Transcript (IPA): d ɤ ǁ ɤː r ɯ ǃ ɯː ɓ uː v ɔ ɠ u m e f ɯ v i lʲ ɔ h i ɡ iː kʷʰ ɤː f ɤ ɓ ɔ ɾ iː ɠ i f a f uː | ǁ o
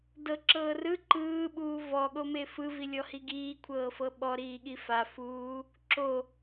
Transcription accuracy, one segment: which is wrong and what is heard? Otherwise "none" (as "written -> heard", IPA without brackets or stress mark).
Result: u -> o